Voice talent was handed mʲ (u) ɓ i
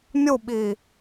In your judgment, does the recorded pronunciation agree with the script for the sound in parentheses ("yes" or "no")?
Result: yes